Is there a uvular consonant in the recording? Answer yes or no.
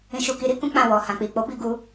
no